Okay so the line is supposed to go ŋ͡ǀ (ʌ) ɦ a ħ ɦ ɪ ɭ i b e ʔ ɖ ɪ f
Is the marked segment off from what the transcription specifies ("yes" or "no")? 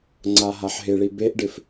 yes